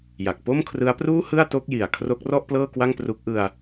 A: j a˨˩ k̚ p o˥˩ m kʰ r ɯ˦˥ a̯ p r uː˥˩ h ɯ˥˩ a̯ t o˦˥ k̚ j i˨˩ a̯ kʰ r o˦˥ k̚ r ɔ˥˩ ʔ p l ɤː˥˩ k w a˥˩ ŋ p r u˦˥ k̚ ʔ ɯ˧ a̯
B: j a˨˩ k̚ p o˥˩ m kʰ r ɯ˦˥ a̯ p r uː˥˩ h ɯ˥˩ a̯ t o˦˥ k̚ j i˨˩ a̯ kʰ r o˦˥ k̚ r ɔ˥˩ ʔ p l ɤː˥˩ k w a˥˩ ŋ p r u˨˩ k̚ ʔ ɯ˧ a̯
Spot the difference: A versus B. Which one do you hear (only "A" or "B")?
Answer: A